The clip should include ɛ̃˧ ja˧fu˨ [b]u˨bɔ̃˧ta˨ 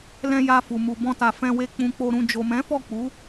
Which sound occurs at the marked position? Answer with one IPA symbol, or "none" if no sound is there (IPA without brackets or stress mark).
m